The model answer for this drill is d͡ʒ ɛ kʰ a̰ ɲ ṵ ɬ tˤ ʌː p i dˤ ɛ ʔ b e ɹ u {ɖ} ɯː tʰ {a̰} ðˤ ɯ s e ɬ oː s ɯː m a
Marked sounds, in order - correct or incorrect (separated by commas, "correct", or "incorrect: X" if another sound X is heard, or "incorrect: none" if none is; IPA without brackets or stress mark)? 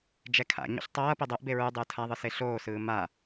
incorrect: dˤ, incorrect: a